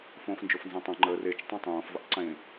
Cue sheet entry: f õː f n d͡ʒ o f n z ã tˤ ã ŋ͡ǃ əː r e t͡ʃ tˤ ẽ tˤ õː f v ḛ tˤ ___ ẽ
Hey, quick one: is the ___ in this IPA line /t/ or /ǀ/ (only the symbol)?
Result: ǀ